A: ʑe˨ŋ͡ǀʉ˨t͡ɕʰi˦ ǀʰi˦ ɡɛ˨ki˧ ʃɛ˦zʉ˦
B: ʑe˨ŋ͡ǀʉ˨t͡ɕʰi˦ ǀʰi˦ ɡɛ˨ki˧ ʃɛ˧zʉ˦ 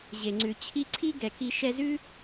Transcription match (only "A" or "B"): B